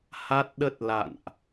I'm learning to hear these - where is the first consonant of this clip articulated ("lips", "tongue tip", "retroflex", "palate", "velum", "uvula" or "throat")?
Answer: throat